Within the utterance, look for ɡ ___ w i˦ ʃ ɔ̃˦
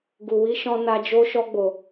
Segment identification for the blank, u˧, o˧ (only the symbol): u˧